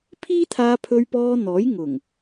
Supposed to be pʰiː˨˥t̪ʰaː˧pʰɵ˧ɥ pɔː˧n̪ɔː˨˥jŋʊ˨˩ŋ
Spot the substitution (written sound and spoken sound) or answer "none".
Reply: iː˨˥ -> iː˥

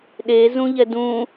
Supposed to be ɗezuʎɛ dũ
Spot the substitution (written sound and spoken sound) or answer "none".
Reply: u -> ũ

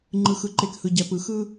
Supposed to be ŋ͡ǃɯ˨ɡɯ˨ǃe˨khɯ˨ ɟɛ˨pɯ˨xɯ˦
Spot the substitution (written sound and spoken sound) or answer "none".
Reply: ɡ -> x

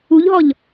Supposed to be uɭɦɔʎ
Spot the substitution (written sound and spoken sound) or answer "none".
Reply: ɭ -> ʎ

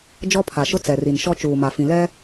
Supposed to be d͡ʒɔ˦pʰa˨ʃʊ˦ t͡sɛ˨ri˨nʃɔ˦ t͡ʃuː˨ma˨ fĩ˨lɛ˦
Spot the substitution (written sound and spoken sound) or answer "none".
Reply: none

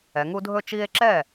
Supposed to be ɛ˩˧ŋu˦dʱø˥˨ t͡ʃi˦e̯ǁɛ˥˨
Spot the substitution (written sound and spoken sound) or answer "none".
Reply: ø˥˨ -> ɵ˥˨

